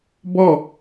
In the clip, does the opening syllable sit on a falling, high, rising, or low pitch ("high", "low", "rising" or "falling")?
falling